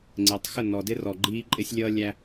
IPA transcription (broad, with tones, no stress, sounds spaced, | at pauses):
ŋ͡ǀ ɪː˨ tˤ x ə˦˨ n ɔ˨ d ɪ˦ r ɔ˨ ɡ͡ǃ iː˦ ǃʼ ɪ˦ sʲ lʲ ʌː˦ lʲ æ˦